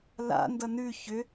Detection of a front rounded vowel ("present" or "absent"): present